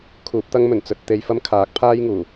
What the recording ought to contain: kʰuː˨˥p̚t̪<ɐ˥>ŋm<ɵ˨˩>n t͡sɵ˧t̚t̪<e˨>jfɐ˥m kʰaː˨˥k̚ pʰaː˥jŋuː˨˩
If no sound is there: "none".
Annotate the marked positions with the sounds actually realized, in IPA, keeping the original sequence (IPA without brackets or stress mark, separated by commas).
ɐ˥, ɵ˨˩, e˧